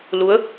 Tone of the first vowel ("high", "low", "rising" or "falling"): rising